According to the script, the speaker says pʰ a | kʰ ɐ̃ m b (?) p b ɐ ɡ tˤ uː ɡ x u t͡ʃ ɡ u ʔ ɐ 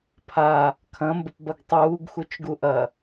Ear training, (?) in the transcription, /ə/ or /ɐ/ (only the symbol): ə